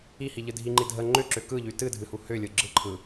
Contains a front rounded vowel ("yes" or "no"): yes